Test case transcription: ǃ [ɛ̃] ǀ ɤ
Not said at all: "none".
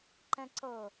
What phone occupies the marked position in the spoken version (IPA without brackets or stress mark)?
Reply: ɛ̃